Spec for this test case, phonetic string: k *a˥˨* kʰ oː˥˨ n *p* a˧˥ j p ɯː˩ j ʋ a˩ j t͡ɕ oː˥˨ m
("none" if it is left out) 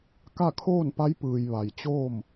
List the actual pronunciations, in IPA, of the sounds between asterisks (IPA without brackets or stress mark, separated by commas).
a˥˨, p